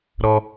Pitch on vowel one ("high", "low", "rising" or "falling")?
low